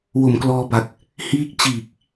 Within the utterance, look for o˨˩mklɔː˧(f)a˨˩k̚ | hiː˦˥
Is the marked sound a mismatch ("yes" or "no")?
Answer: yes